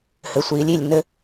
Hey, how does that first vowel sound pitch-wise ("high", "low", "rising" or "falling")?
low